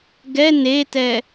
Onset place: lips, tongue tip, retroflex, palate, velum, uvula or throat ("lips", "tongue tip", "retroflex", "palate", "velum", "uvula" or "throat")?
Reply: velum